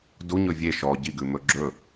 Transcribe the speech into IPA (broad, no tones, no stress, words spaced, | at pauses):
duɲɵ vʲe ʃɔ ɟiɡʉmɵ ɡ͡ǁɵ